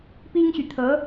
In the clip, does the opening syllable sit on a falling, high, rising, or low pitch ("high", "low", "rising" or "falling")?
high